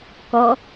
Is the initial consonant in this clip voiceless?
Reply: yes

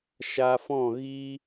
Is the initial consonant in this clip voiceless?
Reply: yes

